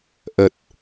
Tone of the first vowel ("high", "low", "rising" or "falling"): low